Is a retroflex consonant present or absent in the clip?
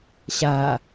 absent